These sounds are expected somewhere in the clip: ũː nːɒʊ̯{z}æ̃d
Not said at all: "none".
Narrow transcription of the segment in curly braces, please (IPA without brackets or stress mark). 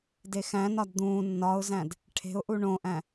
z